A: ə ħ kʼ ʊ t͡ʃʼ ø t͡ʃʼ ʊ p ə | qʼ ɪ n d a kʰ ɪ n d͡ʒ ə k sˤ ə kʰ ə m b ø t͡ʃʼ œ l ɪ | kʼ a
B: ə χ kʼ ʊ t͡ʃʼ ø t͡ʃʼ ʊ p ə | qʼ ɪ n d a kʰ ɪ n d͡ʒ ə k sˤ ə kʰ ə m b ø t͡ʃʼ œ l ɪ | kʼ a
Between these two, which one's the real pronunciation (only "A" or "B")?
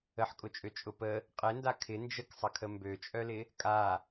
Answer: A